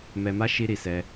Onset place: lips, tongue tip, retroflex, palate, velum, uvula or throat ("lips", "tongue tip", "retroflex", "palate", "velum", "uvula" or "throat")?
lips